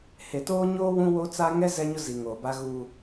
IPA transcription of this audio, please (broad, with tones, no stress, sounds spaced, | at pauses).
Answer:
h e˨ t oː˦ ɲ oː˦ w ũ˦ w o˦ t͡s a˦ ŋ ɛ˦ z ɛ˦ ɲ ʊ˦ z i˨ ŋ oː˨ b a˦ ɣ uː˦